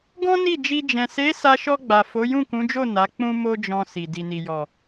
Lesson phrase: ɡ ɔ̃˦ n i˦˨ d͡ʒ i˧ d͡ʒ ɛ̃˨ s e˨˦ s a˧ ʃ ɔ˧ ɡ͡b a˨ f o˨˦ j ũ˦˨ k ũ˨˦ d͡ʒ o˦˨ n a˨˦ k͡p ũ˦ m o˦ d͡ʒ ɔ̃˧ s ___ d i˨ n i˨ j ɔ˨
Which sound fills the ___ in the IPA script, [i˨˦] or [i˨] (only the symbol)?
i˨